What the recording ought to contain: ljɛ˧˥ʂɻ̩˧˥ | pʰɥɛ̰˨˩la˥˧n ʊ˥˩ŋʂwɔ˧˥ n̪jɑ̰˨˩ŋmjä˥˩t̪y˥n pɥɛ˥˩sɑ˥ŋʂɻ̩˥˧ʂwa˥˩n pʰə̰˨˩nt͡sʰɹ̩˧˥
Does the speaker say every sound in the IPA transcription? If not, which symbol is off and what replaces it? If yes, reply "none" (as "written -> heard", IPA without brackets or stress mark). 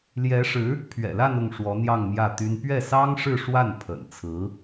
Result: ɑ̰˨˩ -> ɑ˥˧